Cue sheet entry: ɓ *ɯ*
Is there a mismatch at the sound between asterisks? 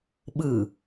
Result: no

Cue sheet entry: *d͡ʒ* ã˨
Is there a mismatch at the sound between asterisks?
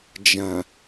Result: no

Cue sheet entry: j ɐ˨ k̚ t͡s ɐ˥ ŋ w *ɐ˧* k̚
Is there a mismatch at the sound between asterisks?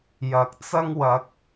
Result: no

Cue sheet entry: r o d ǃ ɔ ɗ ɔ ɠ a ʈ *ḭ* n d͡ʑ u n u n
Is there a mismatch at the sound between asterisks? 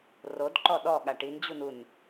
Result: yes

